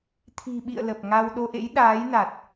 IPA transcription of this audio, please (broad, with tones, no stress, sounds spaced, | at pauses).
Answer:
t̪ʰ i̤˨˩ ɓ ḭ˧˨ ə̯ l ə˨˩ p̚ ŋ a˧ w ɗ o˧ ʔ ḛ˧˥ j ɗ aː˨˦ j n a˨˩ t̚